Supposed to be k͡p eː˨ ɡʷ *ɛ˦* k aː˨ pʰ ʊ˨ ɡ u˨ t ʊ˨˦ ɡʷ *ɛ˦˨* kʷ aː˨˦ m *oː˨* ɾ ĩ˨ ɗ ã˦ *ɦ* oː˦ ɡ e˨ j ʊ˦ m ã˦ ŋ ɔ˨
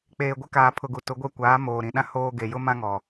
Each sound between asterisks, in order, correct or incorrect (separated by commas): incorrect, correct, correct, incorrect